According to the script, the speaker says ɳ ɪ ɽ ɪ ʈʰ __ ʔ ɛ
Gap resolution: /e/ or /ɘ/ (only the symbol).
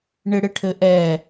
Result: ɘ